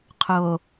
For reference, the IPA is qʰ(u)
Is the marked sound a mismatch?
yes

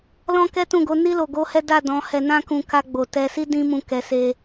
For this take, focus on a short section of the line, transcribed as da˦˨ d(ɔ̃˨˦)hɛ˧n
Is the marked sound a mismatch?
no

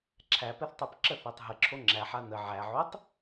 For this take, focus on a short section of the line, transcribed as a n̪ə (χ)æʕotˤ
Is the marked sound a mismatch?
yes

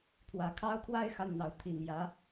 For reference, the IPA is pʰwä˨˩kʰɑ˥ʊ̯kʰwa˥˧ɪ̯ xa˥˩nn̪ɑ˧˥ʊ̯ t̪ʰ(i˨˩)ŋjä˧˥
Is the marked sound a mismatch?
no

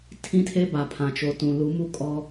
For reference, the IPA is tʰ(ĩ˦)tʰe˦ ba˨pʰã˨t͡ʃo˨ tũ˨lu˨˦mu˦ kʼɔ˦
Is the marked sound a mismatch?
no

